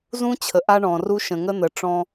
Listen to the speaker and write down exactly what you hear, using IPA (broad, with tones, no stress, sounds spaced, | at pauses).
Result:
z ũ˦ t͡ɕʰ ə˨ ʔ a˦ ɳ ɔ̃˨ r u˦ ʃ ə̃˨ ŋ ə˦ n̪ ə˨ ʈ͡ʂ ɔ̃˦